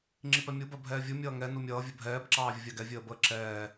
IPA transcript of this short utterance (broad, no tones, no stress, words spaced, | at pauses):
ŋ͡ǁipɛmʲu bɜbʱɛːvʲu mʲʌːŋɛ numʲʌː vʲəbʱɛːb ǁɑːvʲəvʲɑɡɛ vʲəːbəːǁɛː